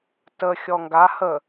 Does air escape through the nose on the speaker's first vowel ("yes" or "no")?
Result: no